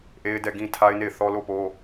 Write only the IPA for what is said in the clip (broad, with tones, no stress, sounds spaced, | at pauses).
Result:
ʔ e˦ ɪ̯ d ɛ˦˨ ɡ ĩ˦ tʰ a˦ ɪ̯ n e˦˨ ɪ̯ θ ɔ˦ l o˦˨ p o˦